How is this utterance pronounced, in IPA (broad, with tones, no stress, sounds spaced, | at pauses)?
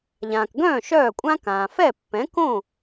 ʎ ãː˩ k ɡ œ̃ː˥˩ ʃ œː˥˩ kʷʼ ã˥ k ãː˩ f ɛ˥˩ pː ɛ̃˩˥ k õ˥˩